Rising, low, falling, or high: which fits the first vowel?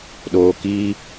low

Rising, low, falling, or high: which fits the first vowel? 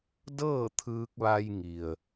falling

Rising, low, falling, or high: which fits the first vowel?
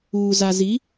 low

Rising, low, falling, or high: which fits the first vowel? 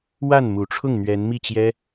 falling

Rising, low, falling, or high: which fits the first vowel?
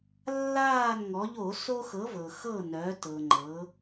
falling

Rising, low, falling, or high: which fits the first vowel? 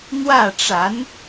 falling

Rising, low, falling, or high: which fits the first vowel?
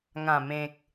low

